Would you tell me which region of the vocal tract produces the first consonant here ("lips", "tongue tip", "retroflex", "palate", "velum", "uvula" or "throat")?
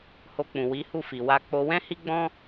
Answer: throat